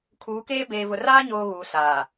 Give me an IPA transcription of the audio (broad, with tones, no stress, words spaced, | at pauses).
kʰuː˨˦keː˦ beː˨vʊ˨raː˦ ɲoː˦ɣuː˨ saː˨